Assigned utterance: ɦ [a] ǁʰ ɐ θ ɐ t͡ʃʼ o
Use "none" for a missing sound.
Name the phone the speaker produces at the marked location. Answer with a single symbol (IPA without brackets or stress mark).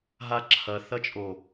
a